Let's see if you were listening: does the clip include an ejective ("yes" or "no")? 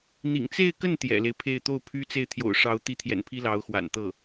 no